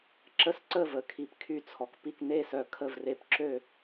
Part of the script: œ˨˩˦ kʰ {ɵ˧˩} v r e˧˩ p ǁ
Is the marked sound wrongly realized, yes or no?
yes